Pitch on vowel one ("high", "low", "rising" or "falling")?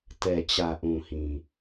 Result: low